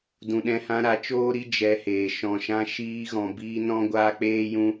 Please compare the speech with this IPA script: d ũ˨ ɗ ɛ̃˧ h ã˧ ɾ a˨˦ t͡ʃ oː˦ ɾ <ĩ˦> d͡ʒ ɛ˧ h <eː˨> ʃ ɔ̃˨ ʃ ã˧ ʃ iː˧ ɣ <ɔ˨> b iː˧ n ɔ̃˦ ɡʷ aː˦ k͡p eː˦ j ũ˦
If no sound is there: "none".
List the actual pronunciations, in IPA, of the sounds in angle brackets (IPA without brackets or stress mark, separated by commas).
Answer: i˦, eː˨, ɔ̃˨